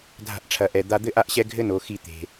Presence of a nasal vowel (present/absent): absent